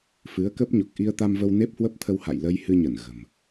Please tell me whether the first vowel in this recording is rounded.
no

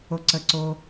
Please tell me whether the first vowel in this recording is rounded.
yes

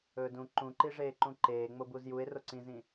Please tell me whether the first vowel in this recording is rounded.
yes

